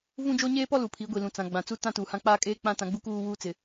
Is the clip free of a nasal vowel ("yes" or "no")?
no